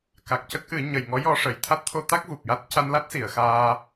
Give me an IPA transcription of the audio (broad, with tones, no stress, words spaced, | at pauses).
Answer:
ka˨˩k̚cə˦˥k̚ʔɨ˨˩˦ ɲə˨˩jŋɔ˧˥jɔ˧ʂə˨˩˨j t̪ʰa˦˥t̚t̪ʰo˧t̪a˦˥k̚ vu˨˩p̚ja˦˥t̚ ca˧nla˦˥t̚si˨˩˨ə̯ xaː˧